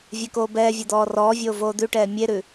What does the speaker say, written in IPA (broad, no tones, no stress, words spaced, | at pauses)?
vʲekoːbɛːvʲe d̪ɔːrɔːvʲoː voːd̪ʉʈɛː mʲeɾʉ